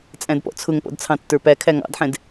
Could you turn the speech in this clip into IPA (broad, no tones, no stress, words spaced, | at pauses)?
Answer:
t͡sʼæ̃dpɔ̰t͡sʰʊŋpɔ̰d t͡sʰɑ̃tːə˞pækʰæ ŋɑ̰dħɛ̃d